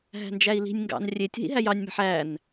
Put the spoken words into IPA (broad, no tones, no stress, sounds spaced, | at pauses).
ɦ æ̤ n d͡ʒ æ i̯ l i̤ nʲ ŋ ɡ ɑ̰ n rʲ e tʲ ɦ ḭ ɦ æ j ɑ nʲ m æ̤ ħ æ n